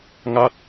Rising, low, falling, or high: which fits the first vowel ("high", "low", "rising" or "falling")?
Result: falling